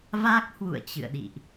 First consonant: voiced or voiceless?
voiced